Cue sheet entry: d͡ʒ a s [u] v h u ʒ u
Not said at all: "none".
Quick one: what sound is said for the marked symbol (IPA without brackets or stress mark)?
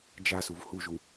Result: u